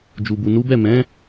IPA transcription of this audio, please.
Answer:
d͡ʒ u˨ b u˨ n u˨˦ b ɛ˦˨ m ɛ̃˨˦

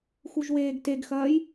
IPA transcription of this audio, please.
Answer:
x u ʒ w eː ɡ t e ɡ x ɐː j

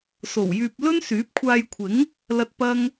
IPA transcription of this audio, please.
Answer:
s o˨˩ w j yː˨ p̚ l ɵ˥ n s yː˨˥ p̚ kʷʰ aː˧ j kʷʰ ɪ˨˥ ŋ | l ɐ˧ t̚ p ɐ˥ ŋ

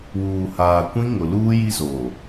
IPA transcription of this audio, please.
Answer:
w uː˨ h aː˨ kʷ ĩ˦ ŋ ʊ˨ l uː˦ j i˦ z oː˨

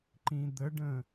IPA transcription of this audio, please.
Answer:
ǃ ĩ d̪ ə ɖ ə̃

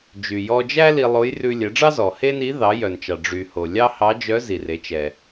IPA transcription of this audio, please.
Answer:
d͡ʒ y˩ j ɔ˧ d͡ʒ æ˥ l i˧ lˠ o˧˥ j r ʉ˧ lʲ ɛ˩˧ ɖ͡ʐ ɑ˥ z ɔ˩ h e˥ n i˧˥ ð ɑ˩˧ j œ˩ n t͡ʃ ɑ˩ ɖ͡ʐ y˩ h o˩ lʲ ɑ˥ h ɑ˧˥ d͡ʒ œ˧˥ z i˩ r e˩˧ t͡ʃ ɛ˩

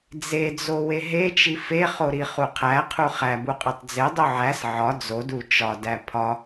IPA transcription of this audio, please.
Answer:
d͡z e d͡z o w e ɦ e t͡ʃ i f e χ o ɾ i χ u qʰ æ qʰ u χ æ b u qʼ i tˤ d͡z e dˤ u ʕ æ s ʕ ɒ d͡z o d u t͡ʃ ɒ d æ pʰ ɒ

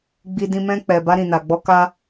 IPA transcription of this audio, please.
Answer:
ɡ͡b i˧ d ĩ˧ m ɛ̃˧ k͡p ɛ˨ b a˧ ɾ ĩ˨ n a˨ ɡ͡b ɔ˧ k a˦

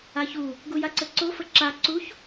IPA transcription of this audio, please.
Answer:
a ç u | ɡ u j a ǀ ə ǀ o f ə ǁ a ǀ u ç

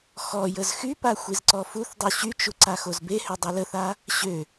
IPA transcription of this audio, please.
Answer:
x ɔ j ə z x y p a xʷ i z ǀ ɔ f u θ dˤ u ɕ y t͡ʃ u ǀ a x o z b e h ø dˤ e l ə θ a | ɕ ø

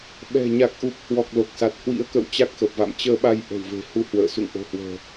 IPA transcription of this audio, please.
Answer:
ɓ ɛ̤˨˩ ɲ a˨˩ k̚ ʔ u˨˩ p̚ h w ɔ˨˩ k̚ l o˨˩ k̚ s a˨˩ t̚ h w ḭ˧˥ ə̯ k ə̰˧˨ w t͡ɕ a˦˥ k̚ x ə˨˩ p̚ v a̰˧˨ m t͡ɕ əː˧ ɓ a˧ j ʔ ə̤˨˩ w v e̤˨˩ h u˧ h w ə̰ː˧˨ s ṵ˧˨ ŋ ʔ o̤˨˩ h w ə̤ː˨˩

